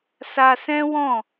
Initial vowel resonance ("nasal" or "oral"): oral